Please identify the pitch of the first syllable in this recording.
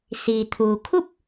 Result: low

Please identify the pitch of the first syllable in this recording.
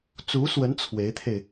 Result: rising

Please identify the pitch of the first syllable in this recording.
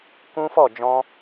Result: high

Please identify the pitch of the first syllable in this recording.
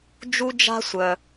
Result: high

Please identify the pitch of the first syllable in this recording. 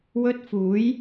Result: high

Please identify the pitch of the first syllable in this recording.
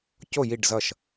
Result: falling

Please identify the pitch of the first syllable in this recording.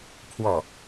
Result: falling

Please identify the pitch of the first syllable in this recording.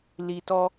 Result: low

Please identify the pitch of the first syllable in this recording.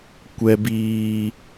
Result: low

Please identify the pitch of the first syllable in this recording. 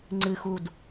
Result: low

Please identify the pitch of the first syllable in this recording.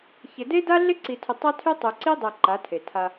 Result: low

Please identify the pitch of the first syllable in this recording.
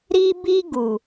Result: high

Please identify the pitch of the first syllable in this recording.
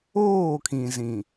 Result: falling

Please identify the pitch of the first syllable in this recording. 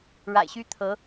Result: low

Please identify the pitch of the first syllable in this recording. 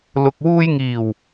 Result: low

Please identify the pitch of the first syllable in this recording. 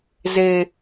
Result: high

